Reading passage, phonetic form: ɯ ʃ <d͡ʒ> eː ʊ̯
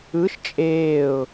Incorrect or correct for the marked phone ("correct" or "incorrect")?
incorrect